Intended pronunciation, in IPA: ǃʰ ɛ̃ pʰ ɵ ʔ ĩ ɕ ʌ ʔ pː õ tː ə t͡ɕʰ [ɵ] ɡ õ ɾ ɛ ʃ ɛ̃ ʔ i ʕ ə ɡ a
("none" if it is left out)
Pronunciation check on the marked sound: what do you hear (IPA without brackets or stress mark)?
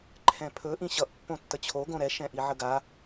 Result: o